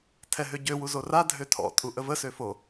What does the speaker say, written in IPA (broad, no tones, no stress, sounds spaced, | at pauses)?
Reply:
tʰ ɛ ɦ ø ɟ ø w u z o r a dʱ ø tʰ ɔ̰ tʼ u ʔ ə v ə s ø f o